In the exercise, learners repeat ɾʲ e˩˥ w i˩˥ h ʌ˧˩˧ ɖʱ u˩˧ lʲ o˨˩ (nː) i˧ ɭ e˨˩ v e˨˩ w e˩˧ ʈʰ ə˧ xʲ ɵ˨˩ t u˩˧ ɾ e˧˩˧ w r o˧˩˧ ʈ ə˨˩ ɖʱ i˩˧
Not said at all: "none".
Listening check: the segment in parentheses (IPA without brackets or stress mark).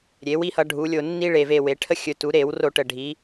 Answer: nː